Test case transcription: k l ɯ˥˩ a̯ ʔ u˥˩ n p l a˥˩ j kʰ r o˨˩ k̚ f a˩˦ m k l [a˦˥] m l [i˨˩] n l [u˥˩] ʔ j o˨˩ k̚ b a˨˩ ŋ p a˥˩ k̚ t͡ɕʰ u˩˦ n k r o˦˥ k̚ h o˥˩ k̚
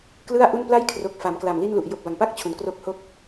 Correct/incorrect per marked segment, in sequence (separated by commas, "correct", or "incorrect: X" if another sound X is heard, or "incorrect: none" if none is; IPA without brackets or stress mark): incorrect: a˨˩, incorrect: i˥˩, incorrect: u˨˩